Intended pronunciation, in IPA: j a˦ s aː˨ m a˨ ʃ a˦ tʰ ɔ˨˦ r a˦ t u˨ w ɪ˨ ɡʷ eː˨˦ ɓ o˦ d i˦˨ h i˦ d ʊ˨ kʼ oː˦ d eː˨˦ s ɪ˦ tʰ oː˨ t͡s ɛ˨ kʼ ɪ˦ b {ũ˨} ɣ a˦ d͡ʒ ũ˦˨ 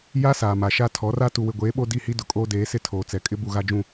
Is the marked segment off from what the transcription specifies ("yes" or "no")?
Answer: yes